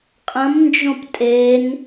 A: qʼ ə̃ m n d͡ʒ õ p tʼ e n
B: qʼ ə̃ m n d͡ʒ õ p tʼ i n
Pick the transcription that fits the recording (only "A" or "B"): A